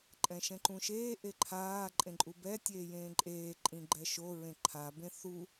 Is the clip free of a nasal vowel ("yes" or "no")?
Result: no